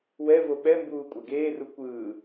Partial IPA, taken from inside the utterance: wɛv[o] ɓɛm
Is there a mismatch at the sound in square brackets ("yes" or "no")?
no